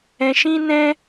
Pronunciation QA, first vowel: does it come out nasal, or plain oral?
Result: nasal